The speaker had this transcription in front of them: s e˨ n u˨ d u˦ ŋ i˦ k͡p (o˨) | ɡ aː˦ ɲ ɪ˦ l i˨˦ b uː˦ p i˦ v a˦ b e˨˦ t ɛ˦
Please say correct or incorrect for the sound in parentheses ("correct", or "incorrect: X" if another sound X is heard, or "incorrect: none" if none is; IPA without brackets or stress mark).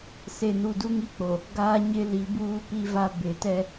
correct